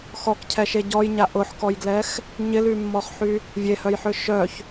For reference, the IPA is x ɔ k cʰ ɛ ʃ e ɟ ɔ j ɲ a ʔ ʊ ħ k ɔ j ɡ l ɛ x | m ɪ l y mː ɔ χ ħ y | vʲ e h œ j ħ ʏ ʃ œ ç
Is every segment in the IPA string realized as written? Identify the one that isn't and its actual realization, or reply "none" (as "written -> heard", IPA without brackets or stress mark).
m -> ɲ